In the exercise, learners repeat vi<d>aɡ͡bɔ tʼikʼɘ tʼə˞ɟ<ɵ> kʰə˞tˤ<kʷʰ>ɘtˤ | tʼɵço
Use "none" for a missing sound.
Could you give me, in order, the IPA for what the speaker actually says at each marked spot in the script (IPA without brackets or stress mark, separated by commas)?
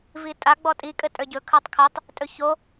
tʼ, ɵ, kʰ